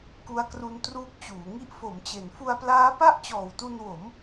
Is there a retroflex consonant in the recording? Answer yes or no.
no